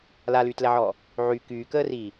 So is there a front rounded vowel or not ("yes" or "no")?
yes